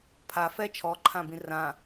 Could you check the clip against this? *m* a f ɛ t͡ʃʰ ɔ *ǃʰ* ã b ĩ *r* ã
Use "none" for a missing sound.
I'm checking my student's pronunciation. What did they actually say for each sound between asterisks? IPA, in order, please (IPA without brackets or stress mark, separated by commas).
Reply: pʰ, ǃʰ, r